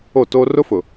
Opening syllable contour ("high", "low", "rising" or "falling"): falling